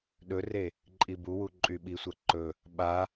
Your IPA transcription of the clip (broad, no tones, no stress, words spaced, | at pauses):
ɗɵre | ǃʼibuwu ǃʼyɓisʷa ǃɵ | ɓa